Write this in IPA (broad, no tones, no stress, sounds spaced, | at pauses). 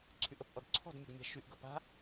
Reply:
ǀʰ y ʔ ə p ʔ ɔ d ǀʰ ɔ̤ d mʲ ə ɡ mʲ a̤ ʃ y ʔ ɡ ʌ p a̤